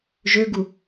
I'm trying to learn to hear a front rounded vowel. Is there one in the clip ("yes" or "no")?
yes